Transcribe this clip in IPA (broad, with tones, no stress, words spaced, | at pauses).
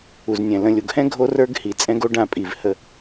u˨znʲɛ̃˨ lə̃˨lʲo˨ɡhɛ̃˦ ɡʱo˦rə˞˦ɡ hi˨t͡sʼɛ̃˦ɡo˦ ɖã˦˨pʼi˨v hə˦